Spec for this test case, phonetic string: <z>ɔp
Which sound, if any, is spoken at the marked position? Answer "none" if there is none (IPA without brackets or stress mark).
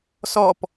s